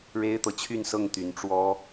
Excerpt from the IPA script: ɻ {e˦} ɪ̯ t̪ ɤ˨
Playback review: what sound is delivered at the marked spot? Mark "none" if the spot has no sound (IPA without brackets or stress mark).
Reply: e˦